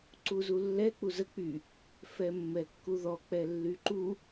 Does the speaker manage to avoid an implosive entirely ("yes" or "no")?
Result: yes